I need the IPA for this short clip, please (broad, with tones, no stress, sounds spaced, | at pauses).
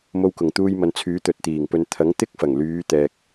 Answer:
m o˧ w k ʊ˨˩ ŋ t̪ uː˧ j m ɐ˨ n t͡sʰ yː˨˥ t̪ ɵ˨ t̚ t̪ iː˨˩ ŋ p ɵ˨ n t̪ʰ ɐ˨˥ ŋ t̪ ɪ˥ k̚ f ɐ˨˩ ŋ l yː˨˧ t̪ ɛː˧ k̚